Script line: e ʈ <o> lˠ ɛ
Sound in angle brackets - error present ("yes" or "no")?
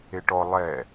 yes